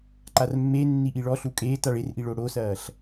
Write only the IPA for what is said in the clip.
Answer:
ǃ a r mː e nː i ʔ i ɭ ɔ ɬ u kʼ eː t a ɭ e r ʔ i ɭ o ɽ o s ɐː ɬ

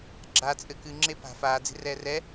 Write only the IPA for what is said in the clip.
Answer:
ɡ͡ǁ a t͡sʼ ɘ k ɨ ŋ͡ǁ e p a̤ f aː d͡z e̤ r ɛː r ɛ

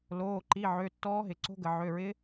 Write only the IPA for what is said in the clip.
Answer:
l oː˩˧˩ ǃ i˩˧˩ ʕ ø˩˧˩ tː ɔː˧˥ ɦ ɪ˩˧ ǀ o̤˧˥ ɡ ə˩ ʕ ø˩˧˩ ɹ ɪ˧˥

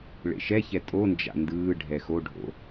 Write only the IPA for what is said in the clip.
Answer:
ɭ ḛ ʃ ɛ ç ɛ tʼ o n d͡ʒ a̰ n d ɯː ɖʱ ɛ x o ɖʱ o̰

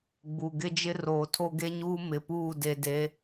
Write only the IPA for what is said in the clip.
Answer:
ɡ͡b u˨ ɡ ɪ˦ d͡ʒ ɪ˦ r oː˨ tʰ o˦ ɡ e˦ ɲ uː˦ m ɪ˨ p uː˦˨ d e˨ d e˨˦

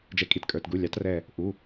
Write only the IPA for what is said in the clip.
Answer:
d͡ʒ ɛ˩˥ kʼ i˧˩ t kʼ ə˞˩˧˩ t ɡ u˩˧˩ lʲ ɑ˩˥ t r ɛ˧˩ | ʔ u˩˧˩

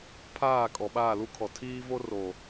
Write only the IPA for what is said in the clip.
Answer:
pʰ aː˦˨ kʼ ɔ˨ ɓ aː˦˨ l u˦ kʰ ɔ˨ tʰ iː˦ v o˦ r o˨

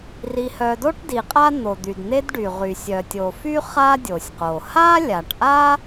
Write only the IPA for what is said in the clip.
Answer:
r i˨ h œ˨ d o˥ ʈ d i˩ qʼ a˥ n̪ o˩ d̪ y˩ d n̪ e˦ d ɖ y˩ ʁ y˩ sʲ œ˩ tʲ o˩ f y˥ χ a˥ dʲ o˩ sʲ q o˩ h a˥ lʲ a˩ ʈ ʔ a˥

